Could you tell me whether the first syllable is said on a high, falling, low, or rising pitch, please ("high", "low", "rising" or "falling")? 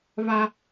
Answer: high